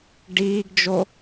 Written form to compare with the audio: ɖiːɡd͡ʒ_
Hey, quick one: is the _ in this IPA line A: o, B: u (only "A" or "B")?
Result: A